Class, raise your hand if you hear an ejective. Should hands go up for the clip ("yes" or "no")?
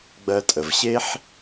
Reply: yes